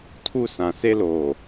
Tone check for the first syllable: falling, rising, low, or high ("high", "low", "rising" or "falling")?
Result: high